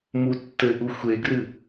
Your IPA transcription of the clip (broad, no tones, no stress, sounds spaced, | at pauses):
m u tː ɘ ʔ u xʷ e ɡ r ɨ